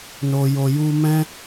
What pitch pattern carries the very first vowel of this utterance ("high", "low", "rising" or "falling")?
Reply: low